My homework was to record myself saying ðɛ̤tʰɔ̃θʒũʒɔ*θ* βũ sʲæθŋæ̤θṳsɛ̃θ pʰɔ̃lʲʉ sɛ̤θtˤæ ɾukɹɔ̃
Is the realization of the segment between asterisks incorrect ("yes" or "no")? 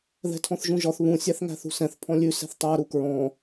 no